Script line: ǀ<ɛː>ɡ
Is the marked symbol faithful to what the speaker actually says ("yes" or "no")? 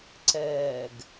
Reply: yes